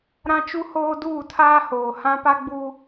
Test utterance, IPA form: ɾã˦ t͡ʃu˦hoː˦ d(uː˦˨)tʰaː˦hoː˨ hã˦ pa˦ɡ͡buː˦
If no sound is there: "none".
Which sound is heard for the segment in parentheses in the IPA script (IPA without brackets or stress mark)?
uː˦˨